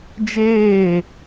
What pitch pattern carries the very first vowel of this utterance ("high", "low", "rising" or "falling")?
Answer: falling